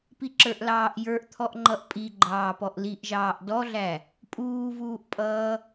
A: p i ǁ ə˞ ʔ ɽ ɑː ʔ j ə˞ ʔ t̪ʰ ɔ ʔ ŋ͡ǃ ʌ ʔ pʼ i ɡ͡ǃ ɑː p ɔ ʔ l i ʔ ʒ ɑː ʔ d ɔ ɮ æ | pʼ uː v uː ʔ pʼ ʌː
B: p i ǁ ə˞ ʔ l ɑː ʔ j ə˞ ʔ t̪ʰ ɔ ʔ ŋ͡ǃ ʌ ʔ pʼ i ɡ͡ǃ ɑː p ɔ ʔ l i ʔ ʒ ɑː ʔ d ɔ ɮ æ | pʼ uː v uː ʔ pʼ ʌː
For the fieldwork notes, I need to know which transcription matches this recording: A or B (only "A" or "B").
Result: B